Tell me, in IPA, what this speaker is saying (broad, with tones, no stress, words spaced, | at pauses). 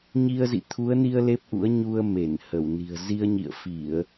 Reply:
ɲi˧ə̯zḭ˧˨ t̪ʰu˨˦ə̯ni˧ə̯ le˦˥p̚ʔṵ˧˥ə̯ ɲu˧ə̯ me˧˩nhə˧˩w ni̤˨˩ə̯ zi˧ə̯ɲḭ˧˨ə̯fi˧˩˨ə̯